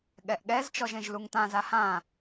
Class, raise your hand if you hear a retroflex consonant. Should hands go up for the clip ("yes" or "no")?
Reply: no